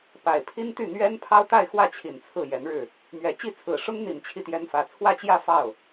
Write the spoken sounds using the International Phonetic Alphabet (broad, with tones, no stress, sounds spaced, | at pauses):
p a˨˩ ɪ̯ pʰ i˥ n t̪ y˥˩ n̪ ɥ ɛ˥ n pʰ ɑ˥ ʊ̯ t̪ a˥˧ ɪ̯ x w ä˥˩ t͡ɕʰ i˨˩ n t͡sʰ ɹ̩˥˩ j ɛ˧˥ n ɻ ɻ̩˥˩ | m ɥ ɛ˨˩ t͡ɕ i˥˩ t͡sʰ ɹ̩˨˩ ʂ ʊ˥ ŋ n̪ i˨˩ n t͡ɕʰ i˥˩ t̪ j ɛ˥ n f ä˧˥ t͡sʰ w ä˥˧ t͡ɕ j ä˥˧ f ɑ˥˩ ʊ̯